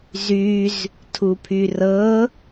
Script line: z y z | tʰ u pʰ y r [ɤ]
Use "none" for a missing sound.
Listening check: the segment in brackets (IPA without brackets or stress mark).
ɤ